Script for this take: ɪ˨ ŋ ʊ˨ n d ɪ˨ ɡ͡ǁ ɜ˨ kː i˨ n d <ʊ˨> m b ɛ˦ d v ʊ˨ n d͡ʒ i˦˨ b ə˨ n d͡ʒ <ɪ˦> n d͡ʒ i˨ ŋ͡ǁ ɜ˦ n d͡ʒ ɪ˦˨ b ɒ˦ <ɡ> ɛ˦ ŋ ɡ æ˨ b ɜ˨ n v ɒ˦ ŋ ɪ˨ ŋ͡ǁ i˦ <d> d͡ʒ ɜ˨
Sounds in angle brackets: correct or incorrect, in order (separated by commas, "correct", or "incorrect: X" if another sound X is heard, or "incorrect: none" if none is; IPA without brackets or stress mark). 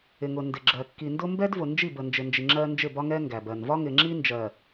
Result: incorrect: ʊ˦, incorrect: ɪ˨, incorrect: ŋ, incorrect: n